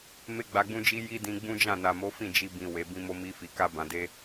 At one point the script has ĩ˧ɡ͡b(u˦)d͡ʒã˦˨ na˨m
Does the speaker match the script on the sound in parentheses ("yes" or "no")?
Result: no